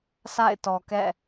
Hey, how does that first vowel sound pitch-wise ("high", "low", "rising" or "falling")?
falling